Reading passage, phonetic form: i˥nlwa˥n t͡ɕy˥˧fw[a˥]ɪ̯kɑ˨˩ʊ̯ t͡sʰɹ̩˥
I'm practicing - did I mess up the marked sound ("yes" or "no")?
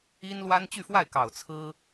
yes